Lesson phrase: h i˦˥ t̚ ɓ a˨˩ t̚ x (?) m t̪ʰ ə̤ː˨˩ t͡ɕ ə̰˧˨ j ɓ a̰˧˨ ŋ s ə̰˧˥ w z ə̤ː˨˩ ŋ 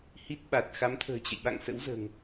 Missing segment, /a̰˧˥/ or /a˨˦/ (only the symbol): a˨˦